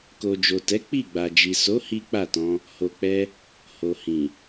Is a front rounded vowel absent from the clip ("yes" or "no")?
yes